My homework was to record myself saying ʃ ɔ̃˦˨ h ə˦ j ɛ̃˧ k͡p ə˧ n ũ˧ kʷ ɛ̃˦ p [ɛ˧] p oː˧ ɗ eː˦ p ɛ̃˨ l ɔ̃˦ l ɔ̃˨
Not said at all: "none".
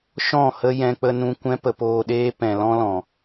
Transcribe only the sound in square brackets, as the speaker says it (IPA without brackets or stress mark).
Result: ə˧